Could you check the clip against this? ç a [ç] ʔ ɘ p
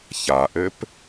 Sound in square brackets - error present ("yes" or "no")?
yes